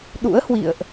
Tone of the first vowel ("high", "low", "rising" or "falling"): rising